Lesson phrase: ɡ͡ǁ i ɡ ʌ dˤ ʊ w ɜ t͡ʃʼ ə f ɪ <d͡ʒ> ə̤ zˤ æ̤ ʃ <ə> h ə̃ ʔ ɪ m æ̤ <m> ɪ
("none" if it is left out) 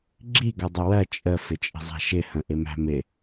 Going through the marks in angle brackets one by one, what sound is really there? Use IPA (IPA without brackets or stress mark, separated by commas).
t͡ʃʼ, ɪ, m